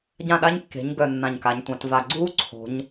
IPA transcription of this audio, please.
ɟ ã˥˩ ɗ a˦˥ ɲ kː e̤˩˥ ɲ ɡ œ˨˩ nː ã˨˩ ɲ k a˩˧ ɲ tʷ ã˩˧ t v a˨˩ ɡ͡ǀ uː˦˥ ǀʰ o̤˩˧ ɲ

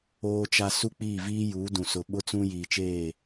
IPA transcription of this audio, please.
oː˦ t͡ʃ a˦ s u˦ k͡p iː˦˨ v iː˦ j uː˨˦ d ũ˨ s ʊ˨ ɓ ʊ˦ t͡s ũ˦ j iː˨ t͡ʃ eː˦˨

